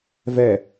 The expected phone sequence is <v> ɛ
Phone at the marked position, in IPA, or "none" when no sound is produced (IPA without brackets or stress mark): v